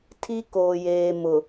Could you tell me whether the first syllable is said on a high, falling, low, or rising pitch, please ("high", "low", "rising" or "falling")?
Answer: high